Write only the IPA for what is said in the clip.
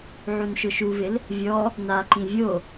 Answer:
ʕunʃʊʃuvɪl | vʲɔ | naǃĩ vʲo

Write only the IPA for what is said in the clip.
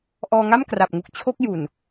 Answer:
ʔɔː˧ŋa˥˩mkra˨˩p̚ŋu˨˩k̚ t͡ɕʰo˦˥k̚ju˨˩n

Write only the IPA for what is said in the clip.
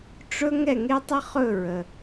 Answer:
ʈ͡ʂɵ˥ ŋɛ˥˨ŋe˥tˤə˥ χɵ˥˨ɹə˨

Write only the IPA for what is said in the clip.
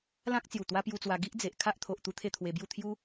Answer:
lã˦k̚t͡sju˨˩ t̪wa˦pju˧t͡swa˧ ɡi˦ʔd͡ze˨ʔ kʰa˦ʔt̪ʰo˨ʔ t̪u˦t̪ʰe˥˧t̪ʰwe˧bju˥˧ t̪ʰju˦

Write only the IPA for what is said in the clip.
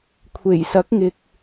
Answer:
kʷʰe˨˩jsɐ˨˥k̚ŋɪ˨k̚

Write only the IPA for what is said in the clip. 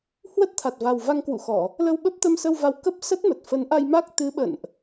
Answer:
hwə˦˥t̚t̪ʰa˨˩t̚va˨˩w va˧ŋkwṵ˧˨xɔ˧˩˨ | lə˧wɓə˦˥p̚t̪ə˧m sə˧wva˨˦w kə˦˥p̚ sə˦˥t̚mə˨˩t̚ fə˨˦nʔa˧jma˦˥k̚ t̪ɨ˨˦ɓə̰˧˨nʔ

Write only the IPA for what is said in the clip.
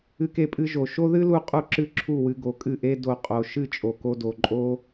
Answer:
ɨ˧ke˧pʼɨ˧ʒo˨ ʃo˦ðɨ˦lu˧ qʼu˦ǁɨ˦ǁʰu˦˨wɨ˧ ɡo˨kʼɨ˦˨ʔe˦ do˧ qʼo˨ʃɨ˦˨t͡ʃʼo˨ ko˧do˨ǃʼo˦

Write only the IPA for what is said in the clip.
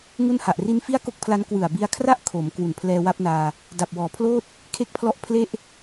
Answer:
ŋu˥˩n ha˨˩ʔ ri˦˥nfi˥˩a̯ko˥˩k̚pʰla˦˥n kwɯ˨˩a̯bi˧a̯kʰra˥˩ʔ kʰo˩˦m kwu˨˩npʰlɛː˧wa˦˥p̚naː˧ | da˨˩p̚wɔː˩˦pʰloː˥˩t̚ | kʰe˥˩k̚pʰlɔ˥˩ʔ pʰle˥˩ʔ

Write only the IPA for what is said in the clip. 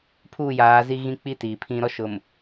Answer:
pʰuː˦˨jaː˨˦zi˦ ɣĩ˦k͡pi˦ tiː˨pʰĩ˦ ɾɔ˦ʃʊ˨m

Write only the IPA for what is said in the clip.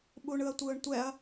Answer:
ɓuɳɯɐ̯tʷɯːɳtʷɛɐ̯

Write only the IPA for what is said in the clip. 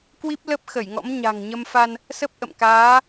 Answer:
kwi˦˥p̚lə˦˥p̚xə˧˩jŋɔ̰˧˥m ɲa̤˨˩ŋ ɲə˧mfa˧n | sə˦˥p̚ʔə̰˧˨mkaː˨˦

